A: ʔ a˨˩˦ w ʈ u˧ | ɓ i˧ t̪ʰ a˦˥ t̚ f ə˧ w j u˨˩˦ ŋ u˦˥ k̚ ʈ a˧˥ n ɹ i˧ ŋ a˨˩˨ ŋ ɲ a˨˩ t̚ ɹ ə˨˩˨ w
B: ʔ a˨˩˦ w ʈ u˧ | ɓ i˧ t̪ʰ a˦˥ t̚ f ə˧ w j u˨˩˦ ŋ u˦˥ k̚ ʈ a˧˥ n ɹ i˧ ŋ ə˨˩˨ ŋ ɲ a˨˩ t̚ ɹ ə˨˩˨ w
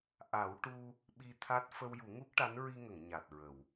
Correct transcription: B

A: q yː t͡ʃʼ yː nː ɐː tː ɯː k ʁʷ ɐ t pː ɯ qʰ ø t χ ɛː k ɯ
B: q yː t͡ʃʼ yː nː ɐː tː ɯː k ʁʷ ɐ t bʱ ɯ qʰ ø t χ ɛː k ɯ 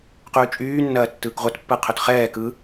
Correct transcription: A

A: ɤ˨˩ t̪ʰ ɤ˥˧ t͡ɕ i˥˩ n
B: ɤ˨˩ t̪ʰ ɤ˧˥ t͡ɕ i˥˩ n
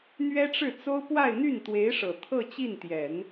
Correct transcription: A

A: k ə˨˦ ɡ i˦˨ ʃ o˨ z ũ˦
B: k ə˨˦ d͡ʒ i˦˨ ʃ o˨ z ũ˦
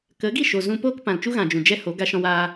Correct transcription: A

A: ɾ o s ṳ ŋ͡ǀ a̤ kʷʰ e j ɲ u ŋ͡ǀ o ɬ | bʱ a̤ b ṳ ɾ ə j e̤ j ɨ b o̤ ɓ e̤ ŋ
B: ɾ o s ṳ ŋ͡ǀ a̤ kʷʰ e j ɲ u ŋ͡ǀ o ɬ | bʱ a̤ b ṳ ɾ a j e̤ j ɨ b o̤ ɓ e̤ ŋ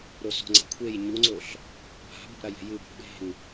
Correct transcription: B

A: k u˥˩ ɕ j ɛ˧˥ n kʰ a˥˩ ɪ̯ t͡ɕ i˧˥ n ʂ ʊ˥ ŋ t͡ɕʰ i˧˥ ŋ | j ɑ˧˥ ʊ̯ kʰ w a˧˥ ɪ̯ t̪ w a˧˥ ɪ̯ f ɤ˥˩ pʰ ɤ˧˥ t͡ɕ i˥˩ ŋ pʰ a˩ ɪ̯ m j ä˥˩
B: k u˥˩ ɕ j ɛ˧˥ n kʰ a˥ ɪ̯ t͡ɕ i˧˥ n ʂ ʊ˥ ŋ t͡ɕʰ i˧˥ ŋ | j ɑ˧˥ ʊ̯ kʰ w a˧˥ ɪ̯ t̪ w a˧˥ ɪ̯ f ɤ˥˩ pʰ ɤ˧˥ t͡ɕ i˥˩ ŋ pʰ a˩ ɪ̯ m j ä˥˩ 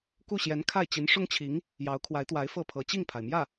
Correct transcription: A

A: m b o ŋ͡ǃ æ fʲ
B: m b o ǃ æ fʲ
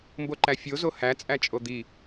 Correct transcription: B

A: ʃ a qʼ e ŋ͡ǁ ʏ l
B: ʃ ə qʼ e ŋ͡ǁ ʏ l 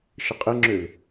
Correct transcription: B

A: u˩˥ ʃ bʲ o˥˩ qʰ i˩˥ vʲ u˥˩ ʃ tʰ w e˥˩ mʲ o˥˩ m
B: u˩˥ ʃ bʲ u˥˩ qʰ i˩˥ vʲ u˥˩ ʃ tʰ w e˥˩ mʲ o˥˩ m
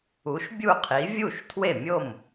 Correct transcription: B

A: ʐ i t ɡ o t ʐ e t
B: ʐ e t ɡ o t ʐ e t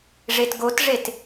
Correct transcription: B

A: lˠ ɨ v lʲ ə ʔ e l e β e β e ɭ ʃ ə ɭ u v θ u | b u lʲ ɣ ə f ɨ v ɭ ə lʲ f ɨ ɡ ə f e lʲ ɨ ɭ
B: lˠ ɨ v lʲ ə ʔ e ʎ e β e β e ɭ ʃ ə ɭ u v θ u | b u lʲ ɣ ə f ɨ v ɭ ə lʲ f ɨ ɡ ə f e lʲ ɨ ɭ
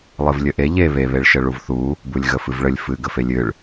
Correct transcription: B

